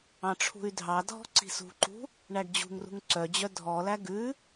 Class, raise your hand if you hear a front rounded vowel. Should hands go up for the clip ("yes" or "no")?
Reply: yes